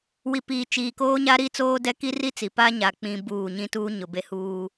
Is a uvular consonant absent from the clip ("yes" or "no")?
yes